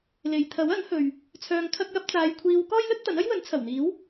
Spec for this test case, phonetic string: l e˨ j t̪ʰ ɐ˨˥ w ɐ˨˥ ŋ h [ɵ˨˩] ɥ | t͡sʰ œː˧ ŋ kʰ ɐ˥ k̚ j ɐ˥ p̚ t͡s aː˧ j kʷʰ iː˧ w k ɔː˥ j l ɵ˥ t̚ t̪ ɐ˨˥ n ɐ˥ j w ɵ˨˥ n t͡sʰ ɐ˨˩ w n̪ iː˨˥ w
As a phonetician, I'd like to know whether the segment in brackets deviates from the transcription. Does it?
yes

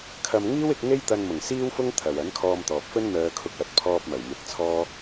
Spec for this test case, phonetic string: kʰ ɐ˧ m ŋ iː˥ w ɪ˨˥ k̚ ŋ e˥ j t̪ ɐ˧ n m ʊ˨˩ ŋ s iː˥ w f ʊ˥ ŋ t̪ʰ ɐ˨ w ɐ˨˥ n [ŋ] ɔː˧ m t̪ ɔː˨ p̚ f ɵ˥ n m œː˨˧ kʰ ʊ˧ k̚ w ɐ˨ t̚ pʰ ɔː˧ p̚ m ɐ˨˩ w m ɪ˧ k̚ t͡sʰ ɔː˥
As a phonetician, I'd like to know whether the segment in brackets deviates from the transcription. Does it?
yes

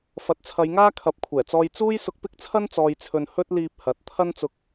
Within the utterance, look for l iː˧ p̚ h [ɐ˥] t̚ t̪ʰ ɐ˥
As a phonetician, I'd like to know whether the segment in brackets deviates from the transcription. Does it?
yes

